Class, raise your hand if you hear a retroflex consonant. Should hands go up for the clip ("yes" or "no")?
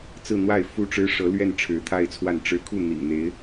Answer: yes